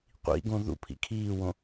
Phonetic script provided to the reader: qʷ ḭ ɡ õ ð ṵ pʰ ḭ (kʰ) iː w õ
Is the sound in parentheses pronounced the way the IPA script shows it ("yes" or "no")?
yes